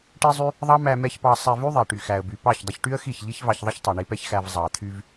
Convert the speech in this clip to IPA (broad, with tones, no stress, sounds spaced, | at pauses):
ʈ i˦ zˤ y˦ | ðˤ ɑ˦ m æ˧ m ɛ˧ ç p ɑ˧ sˤ ɛ˧ v y˦ ðˤ ɛ˨ ʈ y˨ x æ˨ ə̯ b y˨ p ɑ˦˨ ç dˤ ə˧ ç ʈ y˦ ə̯ x i˦˨ ç ʎ i˦ ç v ɑ˧ ç ðˤ ə˦ ç tˤ y˨ ɳ i˧ p ɛ˦ ç x æ˧ v zˤ ɑ˨ t̪ʰ y˧ v